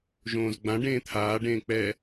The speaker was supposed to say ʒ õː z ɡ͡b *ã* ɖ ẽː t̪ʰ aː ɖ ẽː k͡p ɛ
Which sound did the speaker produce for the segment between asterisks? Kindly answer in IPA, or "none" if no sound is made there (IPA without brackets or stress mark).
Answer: ã